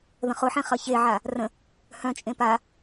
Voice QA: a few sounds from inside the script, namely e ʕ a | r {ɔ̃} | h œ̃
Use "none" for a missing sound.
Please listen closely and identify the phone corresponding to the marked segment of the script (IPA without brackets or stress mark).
ə̃